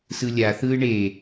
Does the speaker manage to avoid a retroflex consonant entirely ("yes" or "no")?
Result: no